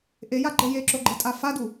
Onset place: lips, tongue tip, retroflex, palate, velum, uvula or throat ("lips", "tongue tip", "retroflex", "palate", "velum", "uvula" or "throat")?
throat